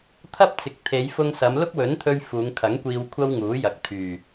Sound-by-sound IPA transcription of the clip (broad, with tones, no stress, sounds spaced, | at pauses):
t̪ʰ ɐ˥ p̚ t͡s ɪ˨ k̚ t̪ʰ e˨˧ j f ʊ˧ ŋ s ɐ˨˧ m l ʊ˥ k̚ w ɵ˨˥ n t̪ʰ ɵ˧ ɥ f uː˨˧ ŋ kʰ ɐ˨˥ ŋ kʷ iː˧ w kʷʰ ɐ˥ w ŋ uː˨˥ j ɐ˨ k̚ t̪ʰ yː˨˩